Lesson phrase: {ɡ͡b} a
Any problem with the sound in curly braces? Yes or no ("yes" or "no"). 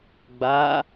no